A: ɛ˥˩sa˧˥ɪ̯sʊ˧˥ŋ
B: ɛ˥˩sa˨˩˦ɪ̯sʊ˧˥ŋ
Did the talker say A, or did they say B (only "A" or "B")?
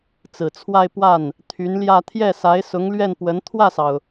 A